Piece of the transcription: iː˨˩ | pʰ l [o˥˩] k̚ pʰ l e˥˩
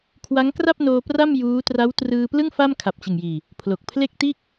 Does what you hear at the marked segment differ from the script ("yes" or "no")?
yes